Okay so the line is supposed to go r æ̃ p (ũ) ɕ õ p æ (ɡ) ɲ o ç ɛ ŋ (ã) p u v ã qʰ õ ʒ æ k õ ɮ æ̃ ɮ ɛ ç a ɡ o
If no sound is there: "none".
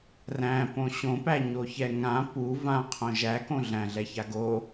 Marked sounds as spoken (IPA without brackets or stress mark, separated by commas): õ, none, ã